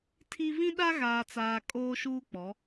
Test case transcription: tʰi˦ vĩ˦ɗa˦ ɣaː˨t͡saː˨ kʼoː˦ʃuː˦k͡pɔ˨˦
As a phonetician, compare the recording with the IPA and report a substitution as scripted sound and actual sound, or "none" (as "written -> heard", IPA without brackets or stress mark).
none